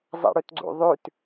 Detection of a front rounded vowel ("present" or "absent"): present